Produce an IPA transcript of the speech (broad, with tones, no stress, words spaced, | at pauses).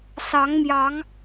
sɑ˨˦ŋmjɑ˨˦ŋ